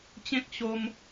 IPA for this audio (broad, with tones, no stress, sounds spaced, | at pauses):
t͡ɕ ẽ˦ k̚ ɕ o˧ m